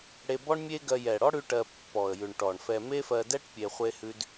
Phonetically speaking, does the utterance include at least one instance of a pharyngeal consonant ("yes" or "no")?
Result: no